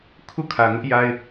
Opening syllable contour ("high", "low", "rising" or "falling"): falling